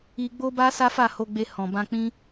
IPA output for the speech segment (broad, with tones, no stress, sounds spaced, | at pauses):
i˧ ɡ͡b o˦ b a˦ s a˦ f a˦˨ h o˧ ɡ͡b e˧ h ɔ̃˨ b ã˧ k͡p ĩ˦